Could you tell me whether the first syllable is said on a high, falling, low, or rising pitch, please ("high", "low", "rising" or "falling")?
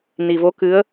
low